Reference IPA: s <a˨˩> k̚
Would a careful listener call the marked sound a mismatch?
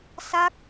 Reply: yes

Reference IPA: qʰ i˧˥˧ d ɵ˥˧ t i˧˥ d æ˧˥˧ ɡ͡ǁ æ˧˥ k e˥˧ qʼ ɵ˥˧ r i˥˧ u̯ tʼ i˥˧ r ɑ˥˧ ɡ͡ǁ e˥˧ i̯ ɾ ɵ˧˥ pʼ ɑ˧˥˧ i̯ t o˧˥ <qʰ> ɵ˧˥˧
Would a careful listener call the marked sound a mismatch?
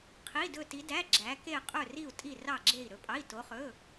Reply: yes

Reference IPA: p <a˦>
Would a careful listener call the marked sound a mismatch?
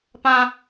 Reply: yes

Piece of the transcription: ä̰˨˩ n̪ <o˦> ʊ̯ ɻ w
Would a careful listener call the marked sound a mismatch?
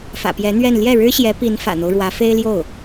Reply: no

